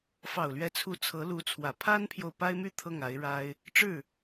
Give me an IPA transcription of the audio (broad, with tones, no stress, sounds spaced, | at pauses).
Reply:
f ɑ˨˩ ʊ̯ l ɥ ɛ˧˥ t͡sʰ u˧˥ t͡sʰ ɤ˧˥ l u˧˥ t͡sʰ w ä˨˩ pʰ a˥ n pʰ j o˨ ʊ̯ p a˥ ɪ̯ m y˥ t̪ʰ ɤ˥˩ ŋ a˧˥ ɪ̯ ɻ a˥ ɪ̯ | ʈ͡ʂ ɻ̩˥˩